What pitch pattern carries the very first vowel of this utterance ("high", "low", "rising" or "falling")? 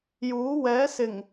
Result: rising